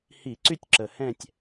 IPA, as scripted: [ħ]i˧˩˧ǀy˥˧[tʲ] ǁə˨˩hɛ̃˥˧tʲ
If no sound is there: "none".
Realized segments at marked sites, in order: h, tʲ

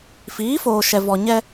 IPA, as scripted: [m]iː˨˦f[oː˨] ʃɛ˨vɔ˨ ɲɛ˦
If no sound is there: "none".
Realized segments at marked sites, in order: f, oː˨

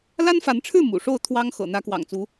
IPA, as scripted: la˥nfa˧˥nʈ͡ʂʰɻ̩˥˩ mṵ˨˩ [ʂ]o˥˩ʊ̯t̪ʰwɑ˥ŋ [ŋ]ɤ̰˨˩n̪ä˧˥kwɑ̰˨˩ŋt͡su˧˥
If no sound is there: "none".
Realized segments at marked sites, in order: ʂ, x

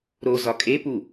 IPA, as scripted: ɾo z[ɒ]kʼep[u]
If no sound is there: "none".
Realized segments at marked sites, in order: ɒ, u

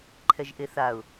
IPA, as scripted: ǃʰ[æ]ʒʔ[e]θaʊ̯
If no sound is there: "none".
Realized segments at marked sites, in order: ɛ, e

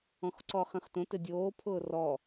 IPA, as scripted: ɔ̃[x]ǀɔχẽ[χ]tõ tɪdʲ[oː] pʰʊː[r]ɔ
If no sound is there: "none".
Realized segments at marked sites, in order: x, χ, oː, r

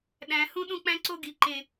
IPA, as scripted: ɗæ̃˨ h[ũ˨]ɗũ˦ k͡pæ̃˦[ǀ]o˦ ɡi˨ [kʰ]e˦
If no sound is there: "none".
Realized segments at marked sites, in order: ũ˦, ǀ, ǃ

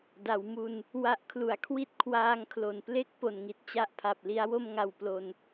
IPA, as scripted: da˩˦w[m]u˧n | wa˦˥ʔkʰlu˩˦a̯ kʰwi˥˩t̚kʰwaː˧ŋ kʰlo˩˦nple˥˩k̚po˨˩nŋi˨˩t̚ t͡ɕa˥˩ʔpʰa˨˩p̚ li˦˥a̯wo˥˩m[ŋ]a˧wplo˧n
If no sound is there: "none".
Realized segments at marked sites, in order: m, ŋ

